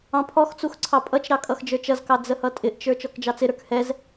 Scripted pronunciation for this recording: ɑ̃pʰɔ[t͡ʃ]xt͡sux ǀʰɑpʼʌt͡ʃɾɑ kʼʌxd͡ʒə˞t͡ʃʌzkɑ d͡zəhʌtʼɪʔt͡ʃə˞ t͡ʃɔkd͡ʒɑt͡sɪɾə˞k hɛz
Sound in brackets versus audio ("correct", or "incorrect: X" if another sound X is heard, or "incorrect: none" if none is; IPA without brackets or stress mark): incorrect: none